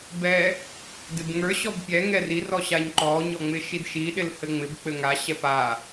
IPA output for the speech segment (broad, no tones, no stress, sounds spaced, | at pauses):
b ɛ | d ɪ b ŋ ə˞ ɕ ɔ b pʲ ɛ ŋ ɛ r i r ɔ ɕ a ɲ ǃ ɔ ɲ ɔ ŋ͡m ɪ ʃ i d ʃ i ɗ ɪ l h ɘ ŋ͡m ɪ b k͡p ɘ ŋ a ɕ ɛ p a